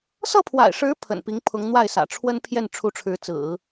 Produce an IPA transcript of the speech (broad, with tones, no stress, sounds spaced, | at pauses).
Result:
s ɤ˥˩ pʰ w a̰˨˩ ɪ̯ ʂ ɻ̩˧˥ pʰ ə̰˨˩ n p i˧˥ ŋ pʰ ʊ˧˥ ŋ n̪ w a˥˩ ɪ̯ s ä̰˨˩ ʈ͡ʂʰ w ə˥ n pʰ j ɛ˥˩ n ʈ͡ʂʰ u˧˥ ʈ͡ʂʰ ɻ̩˧˥ t͡s ɹ̩˨˩˦